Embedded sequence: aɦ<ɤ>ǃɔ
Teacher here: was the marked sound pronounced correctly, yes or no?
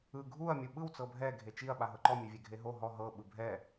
yes